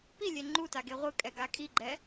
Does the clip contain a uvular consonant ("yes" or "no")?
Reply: yes